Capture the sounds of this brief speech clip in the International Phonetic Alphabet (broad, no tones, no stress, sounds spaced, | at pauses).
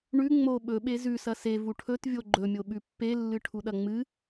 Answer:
ɳ ʉ ŋ͡m o ɓ ɵ ɓ e z ʉ s ɐ s e v u ʈʰ ɵ t vʲ o ɡ͡ǃ ɵ mʲ o ɓ ʉ pː e lː ɨ ʈʰ u ɗ ɐ ŋ͡m ɨ